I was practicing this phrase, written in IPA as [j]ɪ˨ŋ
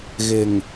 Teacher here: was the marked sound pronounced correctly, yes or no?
no